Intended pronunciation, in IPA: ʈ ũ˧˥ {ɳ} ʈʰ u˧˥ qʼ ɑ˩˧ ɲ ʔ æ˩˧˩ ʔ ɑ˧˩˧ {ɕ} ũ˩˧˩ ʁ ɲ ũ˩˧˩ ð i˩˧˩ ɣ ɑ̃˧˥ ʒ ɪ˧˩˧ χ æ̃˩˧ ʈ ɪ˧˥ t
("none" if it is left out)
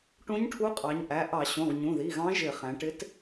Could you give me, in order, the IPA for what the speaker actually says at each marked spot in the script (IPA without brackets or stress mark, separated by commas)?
ɲ, ɕ